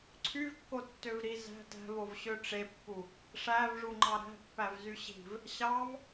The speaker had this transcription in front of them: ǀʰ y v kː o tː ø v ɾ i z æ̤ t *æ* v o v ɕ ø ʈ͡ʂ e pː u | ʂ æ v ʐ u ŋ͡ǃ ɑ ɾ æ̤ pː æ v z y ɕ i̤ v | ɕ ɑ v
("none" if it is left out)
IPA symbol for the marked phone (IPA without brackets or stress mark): æ̤